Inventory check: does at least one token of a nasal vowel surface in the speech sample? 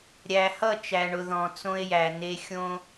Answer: yes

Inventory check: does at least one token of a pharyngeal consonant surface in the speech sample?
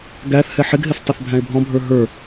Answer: yes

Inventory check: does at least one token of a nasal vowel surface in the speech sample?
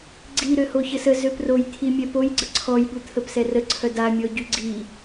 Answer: no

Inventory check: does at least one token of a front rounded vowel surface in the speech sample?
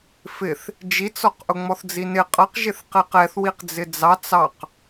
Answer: no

